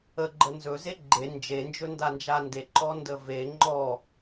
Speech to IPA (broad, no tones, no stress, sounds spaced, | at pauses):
ə ɡ͡ǃ ə n z ɵ z e ɡ͡ǃ e n d͡ʒ e n d͡ʒ ɵ n d a n d͡ʒ a n d e ǃ ɔ n d ə v e ŋ͡ǃ ɔ